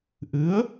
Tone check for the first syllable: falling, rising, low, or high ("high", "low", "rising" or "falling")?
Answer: rising